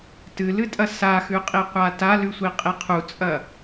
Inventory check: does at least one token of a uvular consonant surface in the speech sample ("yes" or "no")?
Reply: yes